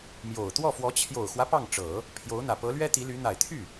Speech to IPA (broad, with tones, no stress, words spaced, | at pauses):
mjo˨˩ʊ̯ t̪wɔ˥˩fwɔ˧˥ t͡ɕʰjo˨˩ʊ̯xwä˦ pɑ˥˩ŋʈ͡ʂɤ˨˩˦ | pʰjo˧˥ʊ̯n̪ä˨˩ pɤ˧˥lɥɛ˥t̪i˧˥ly˧˥ n̪a˨˩ɪ̯t̪ʰy˥˩